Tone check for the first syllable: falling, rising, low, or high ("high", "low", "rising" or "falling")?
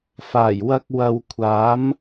low